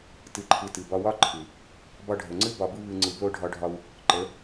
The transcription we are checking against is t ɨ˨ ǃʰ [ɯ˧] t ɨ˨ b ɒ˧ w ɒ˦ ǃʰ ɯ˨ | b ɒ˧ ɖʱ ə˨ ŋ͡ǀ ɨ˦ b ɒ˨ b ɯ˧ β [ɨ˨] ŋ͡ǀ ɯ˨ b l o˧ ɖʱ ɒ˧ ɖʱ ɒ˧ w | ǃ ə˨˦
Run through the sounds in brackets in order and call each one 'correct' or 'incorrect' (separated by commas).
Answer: incorrect, correct